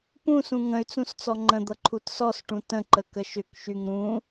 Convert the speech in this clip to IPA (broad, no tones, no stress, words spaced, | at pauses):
pũsũ ŋə̃y̯t͡sũs t͡sɔŋ͡ǃə̃d̪ʌ ǃʰutsɔsʈũ tə̃ǃə kəʃʏkʃyŋ ɾũ